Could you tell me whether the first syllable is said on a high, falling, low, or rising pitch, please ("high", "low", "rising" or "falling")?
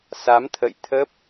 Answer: rising